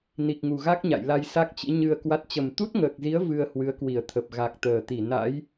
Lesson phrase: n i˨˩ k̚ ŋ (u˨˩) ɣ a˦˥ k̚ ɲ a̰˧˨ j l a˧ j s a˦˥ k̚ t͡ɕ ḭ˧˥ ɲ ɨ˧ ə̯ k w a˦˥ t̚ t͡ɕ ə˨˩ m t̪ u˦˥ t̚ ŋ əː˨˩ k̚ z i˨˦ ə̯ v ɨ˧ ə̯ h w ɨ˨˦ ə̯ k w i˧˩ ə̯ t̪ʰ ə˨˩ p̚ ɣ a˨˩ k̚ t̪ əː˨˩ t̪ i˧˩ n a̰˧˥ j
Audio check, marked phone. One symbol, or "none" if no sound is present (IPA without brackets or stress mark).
u˨˩